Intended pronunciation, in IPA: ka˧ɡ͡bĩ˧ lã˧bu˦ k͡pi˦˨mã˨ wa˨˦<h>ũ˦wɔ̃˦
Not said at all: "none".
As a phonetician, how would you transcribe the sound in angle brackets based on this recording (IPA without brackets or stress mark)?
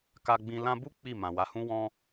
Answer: h